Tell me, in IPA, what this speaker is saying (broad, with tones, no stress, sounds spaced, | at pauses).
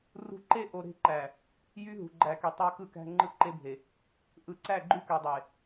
r ṳ˦ ǃ e˦ ʔ o˨ ɾ e̤˦˨ ǃ æ˨ | j y˦ ɦ ṳ˨ ɡ͡ǃ æ˨ k y˨ tˤ ɑ˦ k ɯ˦˨ k æ̤˦ ŋ͡ǃ ɯ˦ ǃ e˦ bʱ e˨ | ʔ ɯ˨ ǀ æ˦˨ ɡ͡ǃ y˦ k ø˨ dˤ e˨